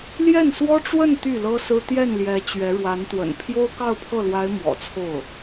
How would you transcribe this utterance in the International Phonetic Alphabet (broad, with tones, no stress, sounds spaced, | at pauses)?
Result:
l j ɛ˥˩ n s w ɔ˥ ʈ͡ʂ w ə˥˧ n t̪ y˥˩ l ɤ˥ s ɹ̩˥ t̪ j ɛ˥˩ n l j ɛ˧˥ t͡ɕ ɥ ɛ˧˥ ɻ w a˧˥ n t̪ w ə̰˨˩ n pʰ j o˥ ʊ̯ k ɑ˥˧ ʊ̯ pʰ ɤ˥˩ l w a˧˥ ɪ̯ m w ɔ̰˨˩ t͡sʰ o˥˩ ʊ̯